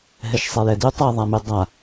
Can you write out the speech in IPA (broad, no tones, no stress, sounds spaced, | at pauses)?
ɦ ɛ ʃ sˤ ɛ j ɛ d y tˤ ɛ ðˤ a m y dˤ a